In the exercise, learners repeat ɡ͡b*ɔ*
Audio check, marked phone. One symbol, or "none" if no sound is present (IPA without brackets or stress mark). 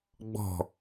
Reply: ɔ̤